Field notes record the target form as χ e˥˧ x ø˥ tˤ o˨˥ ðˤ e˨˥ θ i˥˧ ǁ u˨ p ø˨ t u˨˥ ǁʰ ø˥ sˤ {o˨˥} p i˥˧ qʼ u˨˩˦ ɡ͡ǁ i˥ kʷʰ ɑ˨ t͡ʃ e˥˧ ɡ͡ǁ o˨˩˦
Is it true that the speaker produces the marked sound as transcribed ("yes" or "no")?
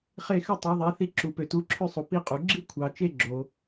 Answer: no